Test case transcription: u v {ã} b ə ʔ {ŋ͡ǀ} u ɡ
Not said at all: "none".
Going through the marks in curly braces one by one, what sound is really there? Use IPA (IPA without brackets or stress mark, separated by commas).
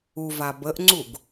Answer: a, ŋ͡ǀ